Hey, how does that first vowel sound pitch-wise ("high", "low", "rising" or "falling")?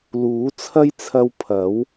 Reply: rising